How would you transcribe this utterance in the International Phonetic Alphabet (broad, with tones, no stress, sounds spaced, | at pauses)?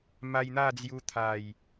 m a˧ j n̪ a˥˧ d͡z j u˧ t̪ʰ a˨˩ j